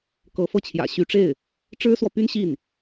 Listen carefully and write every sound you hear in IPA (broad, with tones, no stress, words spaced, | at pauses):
kɤ˧˥fɤ˥˩t͡ɕʰjä̰˨˩ɕy˧˥ ʈ͡ʂe˥˩ɪ̯ | ʈ͡ʂɻ̩˥swɔ˨py˥n ɕi˥˩n